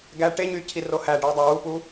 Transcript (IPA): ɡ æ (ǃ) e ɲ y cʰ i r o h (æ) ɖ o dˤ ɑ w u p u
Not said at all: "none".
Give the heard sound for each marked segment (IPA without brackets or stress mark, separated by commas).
ʈ, æ